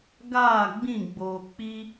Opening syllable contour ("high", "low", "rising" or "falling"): falling